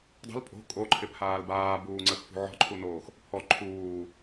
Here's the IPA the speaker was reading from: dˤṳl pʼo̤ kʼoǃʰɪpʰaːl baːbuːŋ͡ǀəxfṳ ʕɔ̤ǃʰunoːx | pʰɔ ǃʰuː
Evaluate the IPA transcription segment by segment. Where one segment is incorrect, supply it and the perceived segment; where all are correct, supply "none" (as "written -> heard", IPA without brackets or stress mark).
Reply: none